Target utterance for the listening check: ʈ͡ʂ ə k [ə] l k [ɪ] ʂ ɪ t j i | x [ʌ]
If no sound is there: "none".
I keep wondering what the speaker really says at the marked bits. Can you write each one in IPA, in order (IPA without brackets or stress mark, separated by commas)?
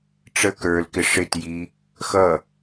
ə˞, ɪ, ʌ